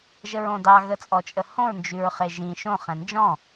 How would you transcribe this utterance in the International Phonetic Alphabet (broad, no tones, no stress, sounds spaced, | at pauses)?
ʒ ə ɹ õ d ɑ ɣ ə t͡sʼ ɔ t͡ʃʼ ə h õ ɹ n d͡ʒ ʉ ɹ χ e ʒ ĩ ʃ õ χ ɛ̃ n d͡ʒ ɔ̃